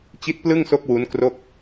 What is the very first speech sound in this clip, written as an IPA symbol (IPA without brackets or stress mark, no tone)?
t͡ɕ